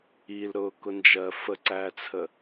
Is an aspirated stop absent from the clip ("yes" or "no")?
no